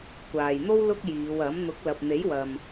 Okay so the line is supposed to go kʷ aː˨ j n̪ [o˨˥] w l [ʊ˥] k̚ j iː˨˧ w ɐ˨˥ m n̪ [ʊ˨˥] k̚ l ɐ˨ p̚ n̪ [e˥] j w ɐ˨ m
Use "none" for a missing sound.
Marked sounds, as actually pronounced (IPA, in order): o˥, ʊ˥, ʊ˨˥, e˨˥

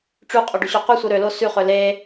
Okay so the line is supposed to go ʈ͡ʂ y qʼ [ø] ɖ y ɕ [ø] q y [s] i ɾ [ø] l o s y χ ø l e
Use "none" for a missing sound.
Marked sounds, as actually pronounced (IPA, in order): ø, ø, sʷ, ø

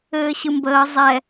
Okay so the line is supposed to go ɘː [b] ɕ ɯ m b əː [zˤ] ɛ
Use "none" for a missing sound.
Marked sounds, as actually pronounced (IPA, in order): none, zˤ

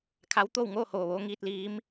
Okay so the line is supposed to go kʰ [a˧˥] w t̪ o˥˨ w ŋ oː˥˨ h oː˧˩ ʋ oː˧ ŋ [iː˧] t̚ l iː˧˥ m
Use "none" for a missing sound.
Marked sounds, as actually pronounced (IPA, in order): a˧˥, iː˧

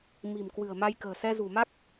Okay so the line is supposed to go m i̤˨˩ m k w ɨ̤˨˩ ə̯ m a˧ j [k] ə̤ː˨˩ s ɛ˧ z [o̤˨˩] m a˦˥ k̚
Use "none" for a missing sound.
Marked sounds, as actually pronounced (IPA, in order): k, ṳ˨˩

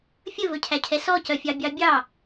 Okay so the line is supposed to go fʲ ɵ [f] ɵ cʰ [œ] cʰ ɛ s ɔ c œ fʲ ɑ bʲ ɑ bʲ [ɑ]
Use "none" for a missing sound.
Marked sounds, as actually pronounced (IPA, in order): v, æ, ɑ

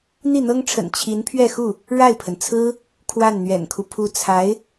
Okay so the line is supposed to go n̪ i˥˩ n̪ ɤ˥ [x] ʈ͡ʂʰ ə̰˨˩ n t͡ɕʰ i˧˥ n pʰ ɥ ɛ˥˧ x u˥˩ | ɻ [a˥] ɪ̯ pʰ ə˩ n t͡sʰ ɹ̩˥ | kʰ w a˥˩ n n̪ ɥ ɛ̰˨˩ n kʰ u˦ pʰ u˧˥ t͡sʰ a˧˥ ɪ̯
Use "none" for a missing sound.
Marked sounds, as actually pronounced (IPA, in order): ŋ, a˥˩

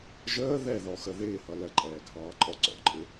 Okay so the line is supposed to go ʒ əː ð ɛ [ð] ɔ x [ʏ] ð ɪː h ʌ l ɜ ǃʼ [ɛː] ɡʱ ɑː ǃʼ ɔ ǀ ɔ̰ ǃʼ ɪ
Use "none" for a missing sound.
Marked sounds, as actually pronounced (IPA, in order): ð, ə, ɛː

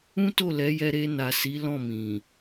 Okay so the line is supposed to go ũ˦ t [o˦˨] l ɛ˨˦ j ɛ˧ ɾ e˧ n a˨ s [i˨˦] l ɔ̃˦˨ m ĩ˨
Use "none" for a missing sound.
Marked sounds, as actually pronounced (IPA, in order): o˦˨, i˨˦

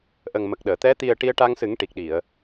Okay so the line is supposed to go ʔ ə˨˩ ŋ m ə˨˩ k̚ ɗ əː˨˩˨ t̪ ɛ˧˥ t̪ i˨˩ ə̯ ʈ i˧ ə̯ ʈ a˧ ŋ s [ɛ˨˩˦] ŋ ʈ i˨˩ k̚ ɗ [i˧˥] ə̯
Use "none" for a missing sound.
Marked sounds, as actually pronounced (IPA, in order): ɨ˨˩˦, i˨˩˨

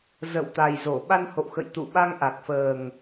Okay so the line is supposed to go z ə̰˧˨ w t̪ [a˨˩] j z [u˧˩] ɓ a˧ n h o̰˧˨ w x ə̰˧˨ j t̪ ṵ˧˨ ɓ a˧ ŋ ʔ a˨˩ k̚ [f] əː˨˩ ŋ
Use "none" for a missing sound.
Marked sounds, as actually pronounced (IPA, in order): a˨˩, o˧˩, f

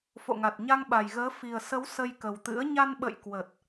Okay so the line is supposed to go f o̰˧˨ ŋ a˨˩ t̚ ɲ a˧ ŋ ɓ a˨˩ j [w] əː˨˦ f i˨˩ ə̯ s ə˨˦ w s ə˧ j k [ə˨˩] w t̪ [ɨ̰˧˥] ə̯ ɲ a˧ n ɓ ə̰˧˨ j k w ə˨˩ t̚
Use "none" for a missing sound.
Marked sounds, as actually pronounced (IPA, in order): ɣ, ə˨˩, ɨ̰˧˥

